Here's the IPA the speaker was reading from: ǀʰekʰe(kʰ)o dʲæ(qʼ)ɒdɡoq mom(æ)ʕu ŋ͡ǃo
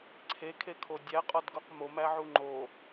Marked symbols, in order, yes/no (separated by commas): yes, yes, yes